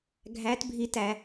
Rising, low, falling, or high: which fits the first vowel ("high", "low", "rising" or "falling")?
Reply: rising